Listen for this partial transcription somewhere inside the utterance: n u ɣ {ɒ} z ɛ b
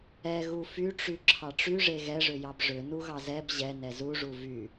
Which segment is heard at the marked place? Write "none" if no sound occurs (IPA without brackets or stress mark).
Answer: ɑ